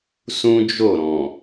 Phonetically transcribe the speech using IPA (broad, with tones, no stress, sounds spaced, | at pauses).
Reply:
s ũ˦ d͡ʒ o˦˨ ɾ ɔ̃˨